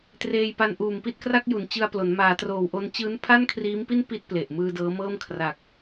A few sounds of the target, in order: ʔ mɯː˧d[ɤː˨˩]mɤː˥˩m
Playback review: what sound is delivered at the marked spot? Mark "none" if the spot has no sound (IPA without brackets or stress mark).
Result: ɤː˦˥